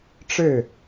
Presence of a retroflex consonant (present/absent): present